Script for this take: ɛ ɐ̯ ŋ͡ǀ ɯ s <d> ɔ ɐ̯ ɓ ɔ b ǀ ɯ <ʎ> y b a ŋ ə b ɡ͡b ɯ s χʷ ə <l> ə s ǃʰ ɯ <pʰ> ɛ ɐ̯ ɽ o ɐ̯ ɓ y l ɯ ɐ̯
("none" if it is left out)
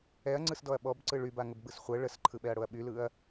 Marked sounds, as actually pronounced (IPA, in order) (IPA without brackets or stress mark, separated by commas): d, ɭ, ɭ, ɓ